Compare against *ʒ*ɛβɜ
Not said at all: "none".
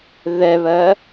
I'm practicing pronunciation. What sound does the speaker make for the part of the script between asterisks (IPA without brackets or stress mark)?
ð